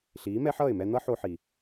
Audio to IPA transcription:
ɬ iː˨˦ m ɛ˦ ħ ʌː˦˨ ɪ̯ m ɛ˧ n̪ ʌ˦ ħ o˧ ħ i˨

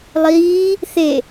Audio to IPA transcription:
lˠ iː | θ e

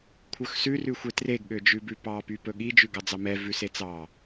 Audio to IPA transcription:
kʷʰ œ x s ʉ r ʉ xʷ e t r e ɡ ɠ ø d͡ʒ ʉ b ʉ p ɑ p y p ɵ ɠ i d͡ʒ ʉ ɡ ɑ d͡z ɑ m ɛ v ʉ s e t͡s ɑ

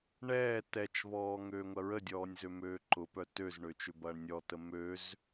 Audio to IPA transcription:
ɳ ɛː t ɛ t͡ʃ β ɔː ŋ øː ŋʷ ɐ ɹ ə dʲ ɔː nʲ z ø m øː ǃ ʊ p œ t ø z ɳ ø t͡ʃ ʏ b ɐː ɳ nʲ ɔ t ə m ø z

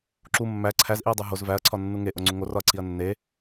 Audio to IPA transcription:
ǁ u mː æ ǀʰ æ z ʔ i ɐ̯ dˤ o ɦ o z v æ ɐ̯ ǀʰ ɒ nː u ŋ e ʔ o ŋ͡ǀ u ŋ o r ɒ ɐ̯ ǀʰ i ɐ̯ nː e

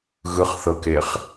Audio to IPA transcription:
ɣ ɯ χ θ ɤ k e χ

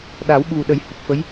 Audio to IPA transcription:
ɗ a˨˩˦ w ɓ u˨˩ ɗ ə˨˩˦ j h u˨˩ p̚ f ə˧˥ j

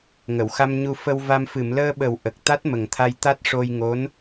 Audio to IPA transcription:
ŋ ə˨˩˨ w x a˧ m ɲ u˧ f ə˧ w v a˧ m f ɨ˨˩˨ m l əː˧ ɓ ə˨˩˦ w ʔ ə˨˩ k̚ t̪ a˦˥ t̚ m ə˨˩ ŋ t̪ʰ a˧ j t̪ a˦˥ t̚ ʂ o˧ j ŋ o˧˥ n

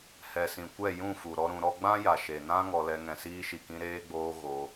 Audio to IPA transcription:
h ɛ˨ s ĩ˨ kʷ ɛ˦˨ j ũ˦˨ f u˨ ɾ ɔ˧ ɾ ũ˧ ɾ ɔ˦ ɡ͡b ã˦ j a˨ ʃ e˨ n ã˦ ŋ ɔ˧ l ɛ˧ ŋ ɛ̃˨ s iː˧ ʃ i˨ k ĩ˧ ɾ eː˧ ɡ͡b oː˧ ɣ o˧

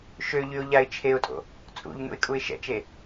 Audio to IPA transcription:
ʃ ø ʎ y ʊ̯ ʎ a ɪ̯ t͡ʃʰ e ʊ̯ tʼ o̰ | t͡sʼ ṵ ʎ n ṵ ɪ̯ kʼ u ɪ̯ ʃ ɛ̰ t͡ʃ e

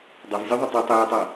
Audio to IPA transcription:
dˤ ʌ v zʲ o ðˤ ɵ tˤ ɨ tˤ eː tˤ a

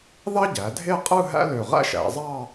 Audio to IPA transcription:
ð ɑ˥ ɟ æ˩˧ dʱ e˥˧ qʼ ɯ˥˧ ɦ æ̰˥ l ø˧˩ ʁ æ̰˥ ʃ æ̰˩˧ zˤ ɑ˥˧

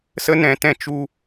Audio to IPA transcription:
s ə˦ n ɛ̃˧ t ɛ̃˦˨ t͡ʃ u˦

